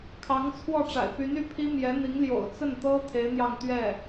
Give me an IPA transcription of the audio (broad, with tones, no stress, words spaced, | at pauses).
kʰɑ˧˥ŋt͡sʰwɔ˥˩ʈ͡ʂa̰˨˩ɪ̯ py˧˥ny˧˥pʰi˥ mjɛ˧˥n̪i˧˥ŋ ljo̰˨˩ʊ̯t͡sə˥˩n t̪ɤ˥ t̪ʰe˧˥ɪ̯n̪jɑ˥˧ŋ t̪ɥɛ˥˩